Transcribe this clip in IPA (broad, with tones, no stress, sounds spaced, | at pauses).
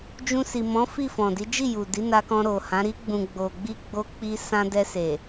d͡ʒ ũ˧ s i˨ m ɔ̃˨˦ f i˦˨ f ɔ̃˨ d i˨˦ d͡ʒ i˦˨ j u˨ d i˨˦ n a˧ k ɔ̃˧ ɾ o˨ h ã˨˦ ɾ i˧ ɡ͡b ũ˨ ɡ͡b o˨ ɡ͡b i˧ ɡ͡b o˧ k͡p i˧ s ã˧ d ɛ˧ s e˨